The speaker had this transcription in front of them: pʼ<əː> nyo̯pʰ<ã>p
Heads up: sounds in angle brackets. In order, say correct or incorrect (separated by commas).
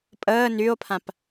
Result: correct, correct